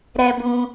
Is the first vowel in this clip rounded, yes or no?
no